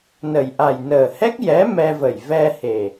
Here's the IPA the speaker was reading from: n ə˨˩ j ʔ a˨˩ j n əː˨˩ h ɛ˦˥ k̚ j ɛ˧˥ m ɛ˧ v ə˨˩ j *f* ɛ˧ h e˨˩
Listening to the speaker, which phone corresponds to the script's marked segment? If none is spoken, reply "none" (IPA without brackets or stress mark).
v